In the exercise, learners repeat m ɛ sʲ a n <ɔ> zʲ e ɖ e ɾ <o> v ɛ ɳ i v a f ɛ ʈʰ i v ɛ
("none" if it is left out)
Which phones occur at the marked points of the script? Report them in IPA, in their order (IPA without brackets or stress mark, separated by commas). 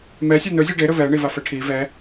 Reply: ɵ, ɵ